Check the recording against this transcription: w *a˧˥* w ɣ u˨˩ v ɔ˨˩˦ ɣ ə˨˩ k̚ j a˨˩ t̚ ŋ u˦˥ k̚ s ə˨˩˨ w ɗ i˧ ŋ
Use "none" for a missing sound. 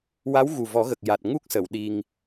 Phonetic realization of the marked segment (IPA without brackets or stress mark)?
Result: a˧˥